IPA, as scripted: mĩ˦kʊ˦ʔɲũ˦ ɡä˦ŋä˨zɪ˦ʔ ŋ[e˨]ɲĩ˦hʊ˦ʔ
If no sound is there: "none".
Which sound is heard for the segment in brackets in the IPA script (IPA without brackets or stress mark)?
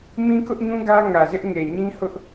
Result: e˨